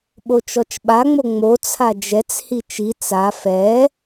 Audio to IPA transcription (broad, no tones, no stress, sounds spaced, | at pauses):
ɓ o t͡ʃ ɔ t͡ʃ ɓ a ŋ͡m o ŋ͡m o t͡sʰ a d͡ʒ ɛ t͡s h i t͡ʃ i t͡s a f ɛ